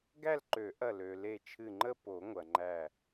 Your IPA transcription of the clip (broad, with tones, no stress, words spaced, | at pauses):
ɡæ˥˧lǃø˨˩˦ʔɐ˧˩ lø˩ le˧˩t͡ʃʰɨ˧˩ŋ͡ǃə˥˧ po˨˩˦ŋʷɐ˩ŋ͡ǃæ˧˩